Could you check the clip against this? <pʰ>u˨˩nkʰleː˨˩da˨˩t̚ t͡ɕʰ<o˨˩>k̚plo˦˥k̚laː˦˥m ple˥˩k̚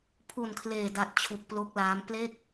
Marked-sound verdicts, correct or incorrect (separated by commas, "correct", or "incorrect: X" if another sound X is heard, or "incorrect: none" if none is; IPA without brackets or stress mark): correct, incorrect: u˨˩